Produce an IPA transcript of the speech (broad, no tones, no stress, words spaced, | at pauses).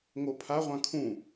ŋopʰaʁʷã kʰũ